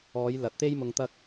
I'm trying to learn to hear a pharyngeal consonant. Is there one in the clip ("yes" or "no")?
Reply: no